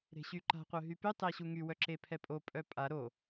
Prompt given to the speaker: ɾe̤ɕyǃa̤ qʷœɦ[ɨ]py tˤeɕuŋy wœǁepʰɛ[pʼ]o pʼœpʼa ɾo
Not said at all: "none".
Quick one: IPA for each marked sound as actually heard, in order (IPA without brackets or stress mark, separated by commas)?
y, pʼ